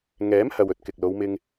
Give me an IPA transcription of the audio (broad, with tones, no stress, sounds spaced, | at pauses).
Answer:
ŋ ɛː˨˥ m h ɐ˨ w ɵ˨˥ t̚ k ɪ˨ k̚ l o˨˧ w m ɪ˧ ŋ